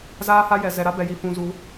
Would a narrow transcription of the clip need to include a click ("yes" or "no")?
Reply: no